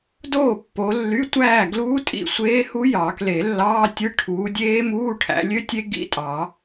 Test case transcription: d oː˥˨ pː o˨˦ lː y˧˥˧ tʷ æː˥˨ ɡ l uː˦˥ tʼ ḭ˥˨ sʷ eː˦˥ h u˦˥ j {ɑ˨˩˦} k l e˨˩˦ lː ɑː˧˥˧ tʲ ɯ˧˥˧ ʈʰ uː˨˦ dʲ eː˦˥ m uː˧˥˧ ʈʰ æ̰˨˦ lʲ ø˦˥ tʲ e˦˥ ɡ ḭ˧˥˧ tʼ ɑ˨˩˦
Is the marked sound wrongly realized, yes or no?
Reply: no